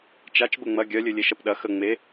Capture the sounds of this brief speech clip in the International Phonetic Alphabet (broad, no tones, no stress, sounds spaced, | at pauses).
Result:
t͡ʃ a t͡ʃ b ə ŋ͡m ɐ ɡʲ œ lʲ ø lʲ e ʃ ɐ p ɗ ɐ x ə ŋ͡m e